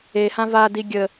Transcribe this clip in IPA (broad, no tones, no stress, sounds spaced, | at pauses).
e h ã v a d i ɡʲ ə